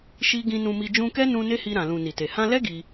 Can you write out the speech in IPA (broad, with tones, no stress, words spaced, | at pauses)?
ʃi˦ ɡĩ˧nũ˧mi˧ d͡ʒũ˧kɛ˦nũ˧ ne˦hi˧ɾã˨ lũ˨ ni˨te˨ hã˧lɛ˦ ɡi˧